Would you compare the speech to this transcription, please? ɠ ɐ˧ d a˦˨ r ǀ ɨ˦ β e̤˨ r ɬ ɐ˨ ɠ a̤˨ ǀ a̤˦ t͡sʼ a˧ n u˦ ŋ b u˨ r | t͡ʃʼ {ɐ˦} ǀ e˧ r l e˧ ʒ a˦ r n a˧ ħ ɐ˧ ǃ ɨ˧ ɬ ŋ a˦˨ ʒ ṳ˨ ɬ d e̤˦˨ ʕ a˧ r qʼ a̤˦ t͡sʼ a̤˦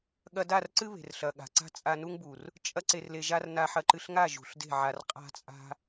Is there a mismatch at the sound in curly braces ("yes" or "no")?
no